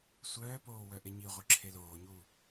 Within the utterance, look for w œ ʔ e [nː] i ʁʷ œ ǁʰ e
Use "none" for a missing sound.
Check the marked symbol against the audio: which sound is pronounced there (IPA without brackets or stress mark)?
ɲ